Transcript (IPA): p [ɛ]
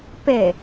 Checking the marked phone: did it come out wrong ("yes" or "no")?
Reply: no